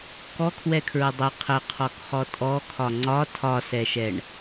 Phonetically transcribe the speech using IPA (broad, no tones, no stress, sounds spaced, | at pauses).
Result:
k ɔ kʰ w ɛ kʰ ɹ ə dˤ ə qʰ ə qʰ ɔ k χ ɔ tʼ ɔ kʰ ɒ ŋ͡ǀ ɒ tʰ ɒ s ɛ ʃ ɛ ɳ